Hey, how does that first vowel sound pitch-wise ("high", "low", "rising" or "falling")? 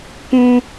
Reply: high